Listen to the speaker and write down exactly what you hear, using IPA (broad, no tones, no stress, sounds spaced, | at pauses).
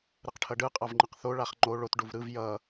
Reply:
ɾ ɯ q ʈʰ ʌ ɖ ɯ qʼ a v ŋ͡ǃ ɯ q θ o ɭ a χ ŋ͡ǃ o ɭ o t ɖ u v ɾ ɯ v j ʌ